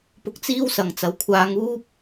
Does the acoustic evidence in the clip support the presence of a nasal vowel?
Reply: no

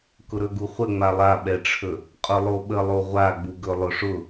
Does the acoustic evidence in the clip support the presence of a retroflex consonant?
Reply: yes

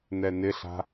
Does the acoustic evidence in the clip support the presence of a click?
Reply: no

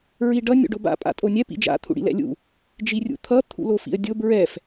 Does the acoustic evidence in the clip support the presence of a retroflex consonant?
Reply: yes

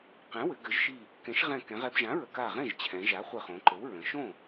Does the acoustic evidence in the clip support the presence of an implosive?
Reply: no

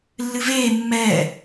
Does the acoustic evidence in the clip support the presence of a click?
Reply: no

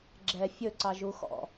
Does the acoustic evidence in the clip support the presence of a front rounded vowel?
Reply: no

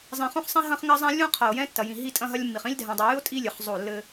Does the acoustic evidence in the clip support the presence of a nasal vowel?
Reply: yes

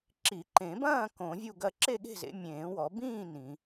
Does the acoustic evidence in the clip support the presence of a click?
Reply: yes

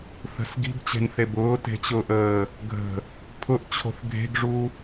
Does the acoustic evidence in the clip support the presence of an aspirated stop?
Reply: yes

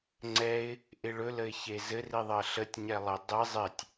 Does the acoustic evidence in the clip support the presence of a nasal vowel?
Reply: no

